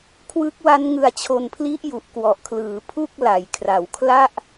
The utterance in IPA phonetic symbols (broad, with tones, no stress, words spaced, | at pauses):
kʰwɯ˦˥k̚wa˦˥n ŋɯ˧a̯t͡ɕʰo˧npʰli˦˥ʔ ju˨˩ʔkwɔ˨˩ʔkʰlɯː˩˦ pʰu˥˩k̚la˩˦j kʰra˩˦wkʰla˥˩ʔ